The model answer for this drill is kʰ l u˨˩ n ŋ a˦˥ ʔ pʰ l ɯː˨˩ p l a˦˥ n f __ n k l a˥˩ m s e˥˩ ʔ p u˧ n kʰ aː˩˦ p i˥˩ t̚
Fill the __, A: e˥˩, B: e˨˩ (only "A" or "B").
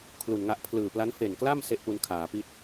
B